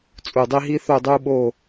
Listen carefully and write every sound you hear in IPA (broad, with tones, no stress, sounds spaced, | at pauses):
t͡sʼ u˨˩ dˤ i˦ ɦ i˦ θ o˦˨ dˤ u˦ ɓ o˦˨